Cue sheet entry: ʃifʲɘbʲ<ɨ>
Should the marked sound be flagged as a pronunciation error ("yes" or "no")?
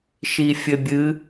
no